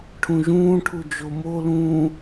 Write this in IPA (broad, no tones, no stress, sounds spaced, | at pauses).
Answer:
ʈʰ ũ ʒ ũː ʈʰ u d͡ʒ o m o l ũː